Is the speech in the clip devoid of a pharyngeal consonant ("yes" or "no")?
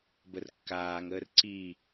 yes